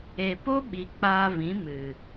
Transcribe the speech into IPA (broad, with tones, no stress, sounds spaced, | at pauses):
e˨ p o˦ ɓ i˨ k͡p aː˧ v ĩ˨˦ m ɨ˨